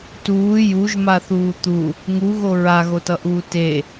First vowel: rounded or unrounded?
rounded